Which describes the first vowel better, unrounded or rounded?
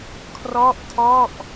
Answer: rounded